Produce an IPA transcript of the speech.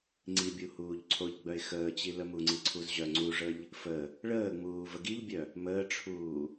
ŋ͡ǀibʲu huːʎǀʰoʎɡ͡bœɪ̯ xəːt͡ɕi ləmuŋ͡ǀi ǀʰuzʑœŋ͡ǀuʐəʎ | fə | ɭəːŋ͡muː vəɡiʎbʲœ | məːʈ͡ʂʰuː

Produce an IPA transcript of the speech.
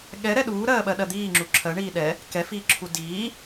ɠɛɾɛ ɗuːɾɜːɓɜɗɜ d̪iːŋ͡ǁu ǁʰɜɳiː ɗɛ | kɛfiːǁʰu diː

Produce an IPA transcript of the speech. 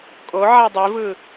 kʼo ʕadˤivɯ

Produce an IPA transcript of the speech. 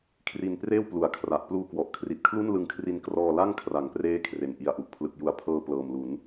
kʰri˧n preː˥˩wplu˩˦a̯ kʰra˨˩ʔ pluː˧kwɔ˨˩ʔkʰri˨˩t̚kʰlu˥˩n lɯ˧ŋkʰri˧n krɔː˧la˥˩ŋkʰra˩˦ŋpreː˦˥ kʰre˨˩nʔi˧a̯ʔu˨˩ʔ pʰlɯ˨˩k̚ju˩˦a̯ pʰɤː˧ plɤː˨˩mlu˩˦n

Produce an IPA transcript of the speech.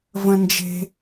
və̃˥nd͡ʒe̤˥

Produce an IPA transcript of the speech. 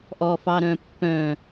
ʔɔfɑɾœ̃pːœ̃

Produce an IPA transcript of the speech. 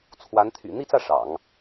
t͡sʰwa˧˥n t̪ʰy̰˨˩n̪i˥˧t͡sä˥˩ ʂɑ̰˨˩˦ŋ

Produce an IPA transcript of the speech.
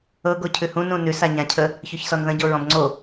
ɤɡo cʰʉhũ nũnʉs aɲãcʰə | çoçsɔnðə̃ɟo ɹɔ̃bŋ͡ǀo

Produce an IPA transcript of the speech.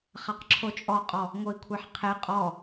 χaqǁʰot͡ʃʼɔqʼɔ | ŋoi̯kʷʰɛħqʰe qʼɔ

